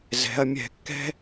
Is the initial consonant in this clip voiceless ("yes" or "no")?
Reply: no